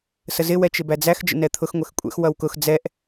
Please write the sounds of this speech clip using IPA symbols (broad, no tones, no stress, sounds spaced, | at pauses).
s ə z ɪ w ɛ t͡ʃ ɪ b æ d͡z æ x d͡ʒ ə̰ n ɛ t̪ʰ ʊ x ŋʷ ɛ x kʷʼ ɛ̰ x w ʌ w k ʊ x d͡z ɛ ʔ